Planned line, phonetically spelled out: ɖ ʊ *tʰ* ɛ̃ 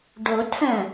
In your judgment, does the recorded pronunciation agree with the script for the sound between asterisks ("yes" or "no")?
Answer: yes